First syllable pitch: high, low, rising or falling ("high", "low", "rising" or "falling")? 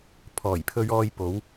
low